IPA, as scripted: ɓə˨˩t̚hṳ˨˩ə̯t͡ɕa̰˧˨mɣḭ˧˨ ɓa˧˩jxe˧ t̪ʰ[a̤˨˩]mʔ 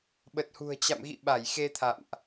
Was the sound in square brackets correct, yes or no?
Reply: no